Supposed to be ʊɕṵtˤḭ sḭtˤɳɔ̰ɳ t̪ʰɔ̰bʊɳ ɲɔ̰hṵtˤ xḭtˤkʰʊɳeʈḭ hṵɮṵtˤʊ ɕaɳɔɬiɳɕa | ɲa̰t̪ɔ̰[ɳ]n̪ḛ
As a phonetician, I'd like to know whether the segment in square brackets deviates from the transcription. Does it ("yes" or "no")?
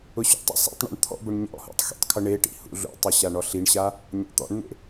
no